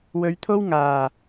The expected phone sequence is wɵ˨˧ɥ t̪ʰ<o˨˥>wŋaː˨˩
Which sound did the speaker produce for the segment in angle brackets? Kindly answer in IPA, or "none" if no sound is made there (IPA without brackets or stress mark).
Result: o˥